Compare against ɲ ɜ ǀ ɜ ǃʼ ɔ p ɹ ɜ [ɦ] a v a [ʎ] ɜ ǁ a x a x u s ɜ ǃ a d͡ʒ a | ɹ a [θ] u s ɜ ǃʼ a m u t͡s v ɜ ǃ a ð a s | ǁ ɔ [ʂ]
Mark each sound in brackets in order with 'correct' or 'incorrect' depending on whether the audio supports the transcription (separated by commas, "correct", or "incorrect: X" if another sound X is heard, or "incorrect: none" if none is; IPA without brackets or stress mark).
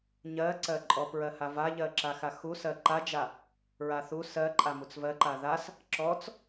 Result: incorrect: h, correct, correct, incorrect: t͡s